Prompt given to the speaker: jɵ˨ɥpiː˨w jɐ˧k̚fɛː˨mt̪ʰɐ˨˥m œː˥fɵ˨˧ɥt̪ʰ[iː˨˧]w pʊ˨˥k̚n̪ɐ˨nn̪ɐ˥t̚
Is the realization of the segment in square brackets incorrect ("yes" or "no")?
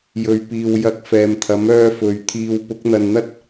yes